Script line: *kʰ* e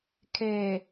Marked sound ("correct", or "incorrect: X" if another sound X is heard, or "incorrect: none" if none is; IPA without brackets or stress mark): correct